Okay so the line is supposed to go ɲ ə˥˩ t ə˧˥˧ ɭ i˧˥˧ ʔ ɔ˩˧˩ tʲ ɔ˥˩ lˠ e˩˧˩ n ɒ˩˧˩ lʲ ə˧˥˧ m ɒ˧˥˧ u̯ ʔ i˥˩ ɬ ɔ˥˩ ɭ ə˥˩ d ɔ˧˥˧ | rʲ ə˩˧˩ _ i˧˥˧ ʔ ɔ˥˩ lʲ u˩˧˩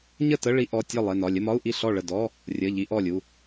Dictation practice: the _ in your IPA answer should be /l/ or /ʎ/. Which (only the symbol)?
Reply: ʎ